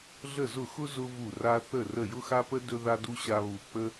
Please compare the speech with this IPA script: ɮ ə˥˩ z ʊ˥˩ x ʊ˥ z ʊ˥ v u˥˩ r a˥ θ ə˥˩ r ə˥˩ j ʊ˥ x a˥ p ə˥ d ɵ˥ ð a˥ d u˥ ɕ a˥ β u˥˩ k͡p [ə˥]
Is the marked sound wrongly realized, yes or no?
no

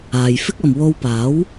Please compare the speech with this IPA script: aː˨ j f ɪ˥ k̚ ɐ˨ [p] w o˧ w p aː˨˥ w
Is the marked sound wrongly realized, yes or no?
yes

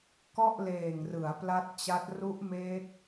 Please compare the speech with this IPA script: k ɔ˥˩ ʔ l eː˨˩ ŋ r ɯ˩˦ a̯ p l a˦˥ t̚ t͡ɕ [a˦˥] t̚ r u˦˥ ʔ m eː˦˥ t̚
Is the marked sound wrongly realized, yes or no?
no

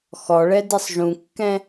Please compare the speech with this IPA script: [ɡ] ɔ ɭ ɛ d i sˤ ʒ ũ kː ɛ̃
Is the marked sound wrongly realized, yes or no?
yes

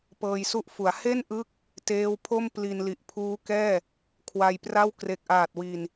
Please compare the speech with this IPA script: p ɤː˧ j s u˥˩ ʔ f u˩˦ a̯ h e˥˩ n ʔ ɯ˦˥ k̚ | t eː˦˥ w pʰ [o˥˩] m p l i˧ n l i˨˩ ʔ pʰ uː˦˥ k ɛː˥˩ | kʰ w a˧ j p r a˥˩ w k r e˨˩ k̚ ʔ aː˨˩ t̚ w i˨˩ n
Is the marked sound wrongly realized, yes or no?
no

